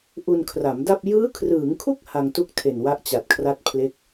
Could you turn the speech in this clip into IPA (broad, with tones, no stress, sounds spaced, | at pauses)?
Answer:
ʔ u˧ n kʰ r a˩˦ m d a˥˩ p̚ j ɯː˦˥ kʰ r ɯː˩˦ ŋ kʰ u˥˩ k̚ h a˧ ŋ t u˥˩ k̚ tʰ e˨˩ n w a˦˥ ʔ t͡ɕ a˨˩ t̚ kʰ r a˥˩ t̚ pʰ l e˦˥ k̚